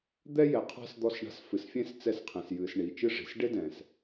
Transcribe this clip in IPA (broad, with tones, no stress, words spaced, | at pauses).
d̪ɛ˦ jɛ˨qʰa̤˦s d̪ɔ˦sɳa̤˦s fɨ˨sfʲẽ˦s t͡sɛ˦˨sqʰẽ˨sjɨː˨s ɳi˨t͡ʃɨ˦ʐi̤˨s ɖe˦dɛ̃ː˨s